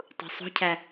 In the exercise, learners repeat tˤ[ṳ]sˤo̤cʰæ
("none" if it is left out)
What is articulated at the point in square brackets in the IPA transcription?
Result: ṳ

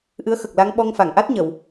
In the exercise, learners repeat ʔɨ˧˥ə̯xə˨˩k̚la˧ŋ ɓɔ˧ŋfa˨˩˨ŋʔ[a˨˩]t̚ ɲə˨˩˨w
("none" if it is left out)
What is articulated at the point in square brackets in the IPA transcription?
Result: a˦˥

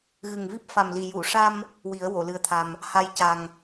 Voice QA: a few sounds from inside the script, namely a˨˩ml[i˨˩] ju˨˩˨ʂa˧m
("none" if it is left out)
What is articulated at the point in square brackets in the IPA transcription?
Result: i˨˩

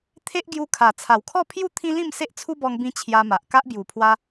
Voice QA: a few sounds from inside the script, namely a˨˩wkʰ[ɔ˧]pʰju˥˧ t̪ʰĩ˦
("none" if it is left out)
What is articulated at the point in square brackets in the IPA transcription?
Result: ɔ˥˧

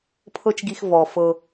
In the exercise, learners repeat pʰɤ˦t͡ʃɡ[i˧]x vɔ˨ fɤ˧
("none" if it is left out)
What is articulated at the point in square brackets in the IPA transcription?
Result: i˧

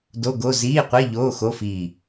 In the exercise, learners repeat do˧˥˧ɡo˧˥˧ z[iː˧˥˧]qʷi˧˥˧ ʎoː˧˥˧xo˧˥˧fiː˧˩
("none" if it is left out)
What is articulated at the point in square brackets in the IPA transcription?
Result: iː˧˥˧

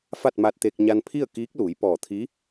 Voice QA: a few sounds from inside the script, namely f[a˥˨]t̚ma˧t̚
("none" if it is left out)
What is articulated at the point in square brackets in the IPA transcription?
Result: a˥˨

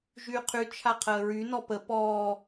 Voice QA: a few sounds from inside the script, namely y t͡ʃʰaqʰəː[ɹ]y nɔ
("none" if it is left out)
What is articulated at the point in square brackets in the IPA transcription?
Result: ɹ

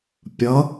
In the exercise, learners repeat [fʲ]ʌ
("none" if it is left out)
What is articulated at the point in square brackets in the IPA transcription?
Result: pʲ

